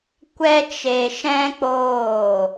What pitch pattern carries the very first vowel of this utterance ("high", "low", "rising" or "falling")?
high